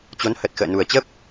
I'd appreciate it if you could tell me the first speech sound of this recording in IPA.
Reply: t͡ɕ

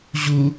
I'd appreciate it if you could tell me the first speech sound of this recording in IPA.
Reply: ʑ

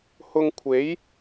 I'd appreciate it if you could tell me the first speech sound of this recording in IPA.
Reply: h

